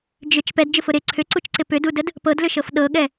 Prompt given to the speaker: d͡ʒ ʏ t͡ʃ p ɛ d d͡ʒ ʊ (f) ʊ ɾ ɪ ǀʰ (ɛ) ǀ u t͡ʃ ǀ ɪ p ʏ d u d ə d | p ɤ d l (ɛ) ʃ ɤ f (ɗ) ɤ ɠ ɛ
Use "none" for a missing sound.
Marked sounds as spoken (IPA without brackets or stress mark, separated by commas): f, ʏ, ʏ, ɗ